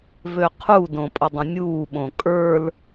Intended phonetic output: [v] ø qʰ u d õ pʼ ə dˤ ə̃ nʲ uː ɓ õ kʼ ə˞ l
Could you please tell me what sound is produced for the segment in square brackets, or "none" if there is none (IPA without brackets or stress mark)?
v